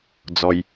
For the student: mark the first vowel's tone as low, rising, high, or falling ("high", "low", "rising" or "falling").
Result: low